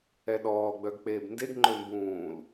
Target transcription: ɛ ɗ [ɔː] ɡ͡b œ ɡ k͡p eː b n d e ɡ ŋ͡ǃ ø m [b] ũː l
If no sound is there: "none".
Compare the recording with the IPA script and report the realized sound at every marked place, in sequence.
ɔː, b

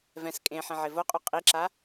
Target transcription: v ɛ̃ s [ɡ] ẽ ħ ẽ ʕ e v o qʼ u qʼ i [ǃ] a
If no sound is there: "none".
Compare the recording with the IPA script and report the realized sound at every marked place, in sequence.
kʼ, ǁ

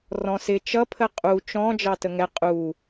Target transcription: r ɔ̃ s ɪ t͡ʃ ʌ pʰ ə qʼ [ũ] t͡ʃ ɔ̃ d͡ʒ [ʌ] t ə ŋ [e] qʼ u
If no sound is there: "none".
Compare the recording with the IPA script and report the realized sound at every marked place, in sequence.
u, ɑ, ɛ

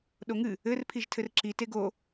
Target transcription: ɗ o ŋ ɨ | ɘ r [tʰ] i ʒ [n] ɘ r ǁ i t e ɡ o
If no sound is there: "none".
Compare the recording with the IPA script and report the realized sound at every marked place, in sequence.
pʰ, tʰ

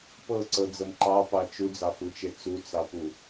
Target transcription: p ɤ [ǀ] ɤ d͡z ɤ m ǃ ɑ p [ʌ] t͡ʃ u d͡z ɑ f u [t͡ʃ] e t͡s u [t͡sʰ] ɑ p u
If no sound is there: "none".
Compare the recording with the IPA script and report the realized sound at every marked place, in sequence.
ǀ, ɑ, t͡ʃ, t͡s

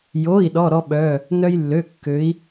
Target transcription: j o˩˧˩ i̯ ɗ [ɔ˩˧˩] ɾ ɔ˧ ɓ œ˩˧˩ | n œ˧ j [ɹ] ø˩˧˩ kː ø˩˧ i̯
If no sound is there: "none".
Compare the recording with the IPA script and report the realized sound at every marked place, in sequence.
ɔ˩˧˩, lː

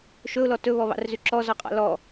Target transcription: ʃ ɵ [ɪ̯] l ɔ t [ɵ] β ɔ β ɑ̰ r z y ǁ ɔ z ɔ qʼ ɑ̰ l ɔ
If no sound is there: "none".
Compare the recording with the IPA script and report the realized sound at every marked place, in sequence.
ʊ̯, ɵ

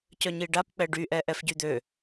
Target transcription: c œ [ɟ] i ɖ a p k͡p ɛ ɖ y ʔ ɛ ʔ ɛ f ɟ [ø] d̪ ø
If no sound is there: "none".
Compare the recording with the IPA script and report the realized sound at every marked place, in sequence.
ɲ, y

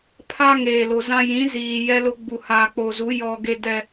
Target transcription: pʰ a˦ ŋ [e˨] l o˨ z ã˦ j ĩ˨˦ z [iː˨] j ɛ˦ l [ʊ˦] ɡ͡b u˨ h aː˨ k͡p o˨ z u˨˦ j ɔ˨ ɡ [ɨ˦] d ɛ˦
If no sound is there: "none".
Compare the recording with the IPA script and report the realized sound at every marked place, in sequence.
eː˨, iː˨, ʊ˦, e˦

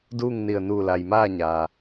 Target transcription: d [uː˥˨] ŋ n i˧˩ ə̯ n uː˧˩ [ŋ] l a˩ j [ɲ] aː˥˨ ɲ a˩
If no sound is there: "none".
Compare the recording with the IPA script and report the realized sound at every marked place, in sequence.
uː˥˨, none, m

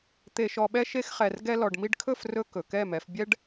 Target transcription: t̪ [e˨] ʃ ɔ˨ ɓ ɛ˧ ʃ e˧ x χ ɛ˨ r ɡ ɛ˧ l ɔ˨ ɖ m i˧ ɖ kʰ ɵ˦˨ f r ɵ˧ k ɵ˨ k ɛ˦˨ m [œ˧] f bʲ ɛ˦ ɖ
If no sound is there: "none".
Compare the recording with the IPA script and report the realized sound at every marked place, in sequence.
e˨, ɛ˧

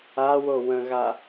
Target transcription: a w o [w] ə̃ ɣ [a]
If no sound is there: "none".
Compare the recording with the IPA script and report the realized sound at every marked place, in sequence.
w, a

